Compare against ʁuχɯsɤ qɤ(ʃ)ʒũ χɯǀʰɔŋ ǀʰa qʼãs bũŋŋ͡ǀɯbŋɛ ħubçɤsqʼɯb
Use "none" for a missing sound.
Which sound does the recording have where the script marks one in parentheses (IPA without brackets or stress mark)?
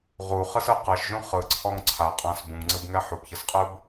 ʃ